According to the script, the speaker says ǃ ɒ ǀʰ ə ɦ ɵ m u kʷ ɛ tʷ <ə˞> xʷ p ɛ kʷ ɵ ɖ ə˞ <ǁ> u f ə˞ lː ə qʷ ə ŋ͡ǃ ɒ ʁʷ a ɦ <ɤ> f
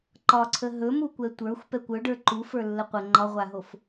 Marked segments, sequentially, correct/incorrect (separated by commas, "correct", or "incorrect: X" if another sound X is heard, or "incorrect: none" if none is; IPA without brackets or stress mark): correct, incorrect: ǃ, incorrect: o